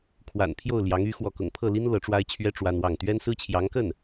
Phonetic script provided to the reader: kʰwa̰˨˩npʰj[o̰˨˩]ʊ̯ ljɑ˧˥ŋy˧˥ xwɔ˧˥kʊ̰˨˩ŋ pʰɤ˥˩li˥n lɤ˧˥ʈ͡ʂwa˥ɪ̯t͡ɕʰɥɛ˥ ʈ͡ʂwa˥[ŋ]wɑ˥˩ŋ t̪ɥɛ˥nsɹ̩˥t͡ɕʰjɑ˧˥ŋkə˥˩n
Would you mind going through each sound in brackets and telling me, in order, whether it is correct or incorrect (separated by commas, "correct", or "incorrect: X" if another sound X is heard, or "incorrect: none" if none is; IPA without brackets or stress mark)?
incorrect: o˥˩, incorrect: n